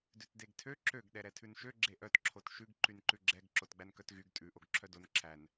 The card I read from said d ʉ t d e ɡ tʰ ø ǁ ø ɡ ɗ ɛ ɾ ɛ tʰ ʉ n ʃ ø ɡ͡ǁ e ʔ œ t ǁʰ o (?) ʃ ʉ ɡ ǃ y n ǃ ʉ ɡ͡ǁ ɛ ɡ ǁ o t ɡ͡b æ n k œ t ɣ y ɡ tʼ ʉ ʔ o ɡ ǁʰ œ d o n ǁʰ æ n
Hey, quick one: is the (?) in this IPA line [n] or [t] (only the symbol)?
t